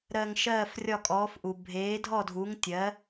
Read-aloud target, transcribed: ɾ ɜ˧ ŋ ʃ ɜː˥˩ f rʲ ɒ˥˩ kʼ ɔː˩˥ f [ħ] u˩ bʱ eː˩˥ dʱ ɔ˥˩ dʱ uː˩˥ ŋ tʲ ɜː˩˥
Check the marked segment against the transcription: incorrect: ʔ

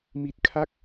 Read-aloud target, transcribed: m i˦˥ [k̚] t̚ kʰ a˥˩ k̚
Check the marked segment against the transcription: incorrect: none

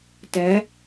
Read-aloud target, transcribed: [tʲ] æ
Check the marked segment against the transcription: incorrect: t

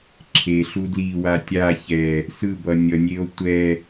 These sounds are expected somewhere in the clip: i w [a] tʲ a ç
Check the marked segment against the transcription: correct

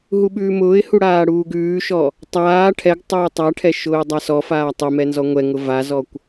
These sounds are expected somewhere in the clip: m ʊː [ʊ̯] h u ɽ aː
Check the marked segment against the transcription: incorrect: ɪ̯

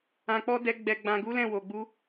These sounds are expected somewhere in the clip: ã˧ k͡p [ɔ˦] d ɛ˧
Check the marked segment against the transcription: correct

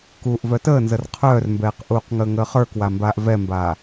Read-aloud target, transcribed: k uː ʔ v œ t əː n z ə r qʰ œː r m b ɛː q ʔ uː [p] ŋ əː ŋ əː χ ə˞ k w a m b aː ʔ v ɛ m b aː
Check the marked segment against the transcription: incorrect: q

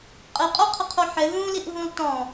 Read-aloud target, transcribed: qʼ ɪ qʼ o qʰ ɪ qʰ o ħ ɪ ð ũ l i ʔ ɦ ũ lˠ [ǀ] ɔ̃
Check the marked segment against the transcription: incorrect: t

